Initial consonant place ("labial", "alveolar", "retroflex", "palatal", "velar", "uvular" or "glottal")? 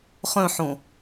uvular